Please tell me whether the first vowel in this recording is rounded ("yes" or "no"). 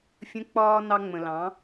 no